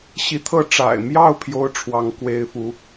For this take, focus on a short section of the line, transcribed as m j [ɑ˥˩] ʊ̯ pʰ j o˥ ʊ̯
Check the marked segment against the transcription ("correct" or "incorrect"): correct